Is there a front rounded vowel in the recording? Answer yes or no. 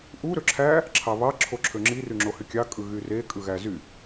yes